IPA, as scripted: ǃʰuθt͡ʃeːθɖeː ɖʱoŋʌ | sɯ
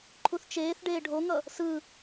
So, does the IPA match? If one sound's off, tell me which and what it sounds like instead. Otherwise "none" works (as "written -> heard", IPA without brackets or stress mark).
none